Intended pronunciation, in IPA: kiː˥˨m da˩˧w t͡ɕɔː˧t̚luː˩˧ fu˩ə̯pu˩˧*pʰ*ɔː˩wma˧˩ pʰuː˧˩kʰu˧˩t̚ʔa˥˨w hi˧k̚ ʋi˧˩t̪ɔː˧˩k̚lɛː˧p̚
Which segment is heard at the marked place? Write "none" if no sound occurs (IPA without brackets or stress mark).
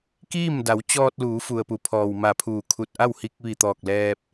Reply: pʰ